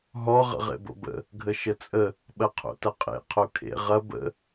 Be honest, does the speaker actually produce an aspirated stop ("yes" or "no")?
yes